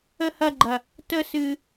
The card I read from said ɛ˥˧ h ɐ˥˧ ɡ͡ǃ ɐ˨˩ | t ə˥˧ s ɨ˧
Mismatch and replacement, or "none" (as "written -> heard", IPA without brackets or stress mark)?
ɛ˥˧ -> ə˥˧